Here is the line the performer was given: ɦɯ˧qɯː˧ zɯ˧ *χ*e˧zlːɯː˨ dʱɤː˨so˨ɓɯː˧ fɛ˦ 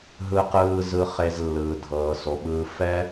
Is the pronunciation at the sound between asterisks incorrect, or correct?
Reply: correct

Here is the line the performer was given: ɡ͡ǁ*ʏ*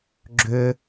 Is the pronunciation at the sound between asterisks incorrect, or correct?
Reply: correct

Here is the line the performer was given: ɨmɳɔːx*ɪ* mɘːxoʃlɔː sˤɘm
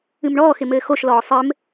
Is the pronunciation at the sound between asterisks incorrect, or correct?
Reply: correct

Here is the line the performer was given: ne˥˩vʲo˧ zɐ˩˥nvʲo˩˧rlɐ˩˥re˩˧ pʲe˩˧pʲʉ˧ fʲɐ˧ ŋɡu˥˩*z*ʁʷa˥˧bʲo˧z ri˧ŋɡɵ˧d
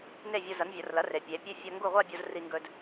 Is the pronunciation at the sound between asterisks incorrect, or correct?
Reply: incorrect: none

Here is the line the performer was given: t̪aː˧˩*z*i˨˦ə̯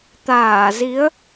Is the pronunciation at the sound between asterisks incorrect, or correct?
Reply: correct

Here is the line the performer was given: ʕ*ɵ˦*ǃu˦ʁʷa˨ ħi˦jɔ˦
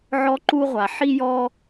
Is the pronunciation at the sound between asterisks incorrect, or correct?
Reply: incorrect: ɔ˦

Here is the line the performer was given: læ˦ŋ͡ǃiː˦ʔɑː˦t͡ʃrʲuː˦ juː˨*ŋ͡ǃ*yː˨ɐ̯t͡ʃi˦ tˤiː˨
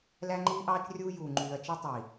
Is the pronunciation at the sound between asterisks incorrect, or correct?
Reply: correct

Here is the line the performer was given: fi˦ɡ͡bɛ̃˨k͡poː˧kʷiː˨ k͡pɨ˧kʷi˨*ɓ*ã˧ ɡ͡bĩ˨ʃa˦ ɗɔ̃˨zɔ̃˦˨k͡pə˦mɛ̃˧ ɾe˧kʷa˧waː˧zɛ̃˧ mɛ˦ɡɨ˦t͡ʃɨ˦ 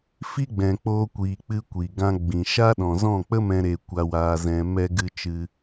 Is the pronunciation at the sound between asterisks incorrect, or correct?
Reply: incorrect: ɡ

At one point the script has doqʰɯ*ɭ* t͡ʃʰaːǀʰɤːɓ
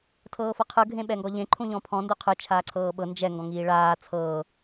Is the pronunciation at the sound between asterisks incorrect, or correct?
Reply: incorrect: none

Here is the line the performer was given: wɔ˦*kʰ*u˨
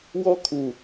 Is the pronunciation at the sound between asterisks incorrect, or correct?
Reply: correct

